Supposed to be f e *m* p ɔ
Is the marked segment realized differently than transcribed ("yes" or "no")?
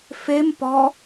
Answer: no